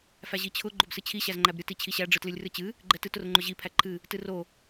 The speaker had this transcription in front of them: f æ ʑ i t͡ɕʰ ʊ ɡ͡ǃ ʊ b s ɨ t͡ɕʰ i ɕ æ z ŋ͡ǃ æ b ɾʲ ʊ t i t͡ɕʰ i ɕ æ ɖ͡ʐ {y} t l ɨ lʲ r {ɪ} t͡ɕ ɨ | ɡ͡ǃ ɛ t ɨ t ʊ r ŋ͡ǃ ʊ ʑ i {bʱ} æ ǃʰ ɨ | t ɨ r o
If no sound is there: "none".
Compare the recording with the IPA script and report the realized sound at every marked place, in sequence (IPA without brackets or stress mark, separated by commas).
ɨ, ɨ, pʰ